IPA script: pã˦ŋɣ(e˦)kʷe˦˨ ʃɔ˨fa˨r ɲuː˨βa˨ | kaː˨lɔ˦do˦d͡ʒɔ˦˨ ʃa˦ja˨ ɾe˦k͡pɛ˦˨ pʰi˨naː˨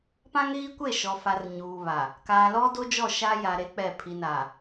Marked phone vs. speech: incorrect: i˦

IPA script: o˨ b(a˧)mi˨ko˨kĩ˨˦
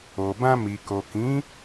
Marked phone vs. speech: incorrect: ã˧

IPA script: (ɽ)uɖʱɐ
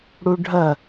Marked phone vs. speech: correct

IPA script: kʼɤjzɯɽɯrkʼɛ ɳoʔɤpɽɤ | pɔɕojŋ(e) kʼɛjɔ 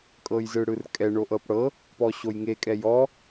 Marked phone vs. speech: correct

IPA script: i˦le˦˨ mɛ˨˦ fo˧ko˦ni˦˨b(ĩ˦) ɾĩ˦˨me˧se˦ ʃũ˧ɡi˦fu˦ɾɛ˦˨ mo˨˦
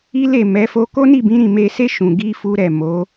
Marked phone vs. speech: incorrect: ĩ˨˦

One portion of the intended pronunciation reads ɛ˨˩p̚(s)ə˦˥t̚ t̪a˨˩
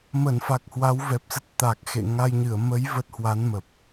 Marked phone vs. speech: correct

